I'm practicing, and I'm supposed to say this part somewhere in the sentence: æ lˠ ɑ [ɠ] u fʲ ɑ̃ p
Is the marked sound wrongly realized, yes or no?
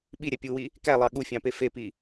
no